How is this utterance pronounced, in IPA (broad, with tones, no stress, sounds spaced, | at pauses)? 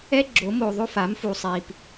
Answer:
ɛ˦ ɡ͡ǁ o˨˦ m o˨ ðˤ o˦ f a˨˦ m f u˨ sˤ i˨ p